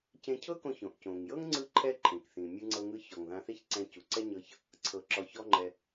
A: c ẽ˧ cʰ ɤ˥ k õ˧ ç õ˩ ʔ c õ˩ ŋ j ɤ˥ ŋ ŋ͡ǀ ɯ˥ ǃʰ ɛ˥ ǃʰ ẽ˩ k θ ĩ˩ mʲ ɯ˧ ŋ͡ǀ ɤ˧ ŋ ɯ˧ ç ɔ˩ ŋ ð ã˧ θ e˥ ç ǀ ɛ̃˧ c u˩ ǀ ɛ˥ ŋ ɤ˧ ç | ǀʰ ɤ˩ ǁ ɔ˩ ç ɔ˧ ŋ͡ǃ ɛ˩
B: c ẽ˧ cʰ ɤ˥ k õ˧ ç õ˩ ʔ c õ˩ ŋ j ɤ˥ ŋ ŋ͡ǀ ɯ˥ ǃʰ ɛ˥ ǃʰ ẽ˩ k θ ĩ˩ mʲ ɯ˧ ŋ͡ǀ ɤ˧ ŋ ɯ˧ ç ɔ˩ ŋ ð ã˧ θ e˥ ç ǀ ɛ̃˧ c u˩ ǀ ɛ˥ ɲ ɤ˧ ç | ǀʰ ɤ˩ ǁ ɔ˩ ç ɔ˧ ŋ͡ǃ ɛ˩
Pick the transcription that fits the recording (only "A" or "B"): B